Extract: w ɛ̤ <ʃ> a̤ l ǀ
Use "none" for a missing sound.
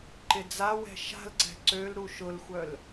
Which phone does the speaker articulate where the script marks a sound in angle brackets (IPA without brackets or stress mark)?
ʃ